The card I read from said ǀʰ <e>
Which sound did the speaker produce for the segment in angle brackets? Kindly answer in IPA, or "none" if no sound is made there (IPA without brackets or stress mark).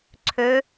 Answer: ø